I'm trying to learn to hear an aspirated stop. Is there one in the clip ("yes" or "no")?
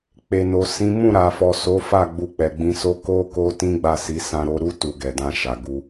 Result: no